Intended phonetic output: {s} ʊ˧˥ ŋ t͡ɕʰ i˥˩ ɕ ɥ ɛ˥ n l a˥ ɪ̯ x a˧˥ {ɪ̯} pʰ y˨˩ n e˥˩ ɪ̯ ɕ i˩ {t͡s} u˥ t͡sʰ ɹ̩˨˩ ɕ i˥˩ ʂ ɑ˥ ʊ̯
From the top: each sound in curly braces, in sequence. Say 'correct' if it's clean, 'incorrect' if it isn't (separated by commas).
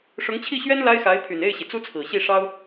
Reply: incorrect, correct, correct